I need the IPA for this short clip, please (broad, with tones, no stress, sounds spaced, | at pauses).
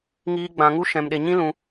ŋ iː˦ ɡ͡b ã˧ ŋ u˦ ʃ ɛ̃˧ m ɗ e˧ ɲ ĩ˦ l ũ˧